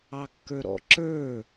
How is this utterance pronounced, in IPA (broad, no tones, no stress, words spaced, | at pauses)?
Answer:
ɑkːə˞ɾɔ̰ ǁə˞